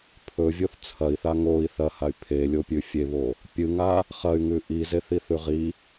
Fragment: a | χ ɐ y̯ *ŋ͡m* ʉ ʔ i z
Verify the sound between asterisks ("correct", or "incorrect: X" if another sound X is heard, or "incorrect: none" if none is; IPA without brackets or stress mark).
incorrect: ŋ